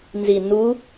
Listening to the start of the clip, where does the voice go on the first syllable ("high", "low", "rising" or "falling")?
low